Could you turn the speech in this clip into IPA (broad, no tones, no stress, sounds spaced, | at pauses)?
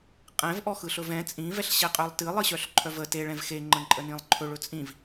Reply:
qʼ ɛ̃ v ʔ ɔ x ɯ ɬ ɵ v ɛ̃ t͡sʼ ĩ v ɛ ɬ ɕ ɛ qʼ œ lˠ t ɨ lˠ ɨ ɕ œ ɬ ǃʰ œ v ə t e ɭ ɛ̃ v x e ŋ͡ǃ ə̃ ǃʼ ə n ĩ lˠ ǃʰ ɵ ɭ ɵ t͡sʼ ĩ v